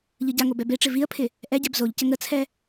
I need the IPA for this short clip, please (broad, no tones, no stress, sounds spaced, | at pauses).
ʎ ɯ ɟ a ŋ o b ɛ b e ʈ͡ʂ ɪ v i ə̯ pʰ ɪ | ʔ ɛ ɟ ɛ b z o ʎ c ɘ ŋ ə t͡sʰ ɛ